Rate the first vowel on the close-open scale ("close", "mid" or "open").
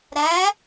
open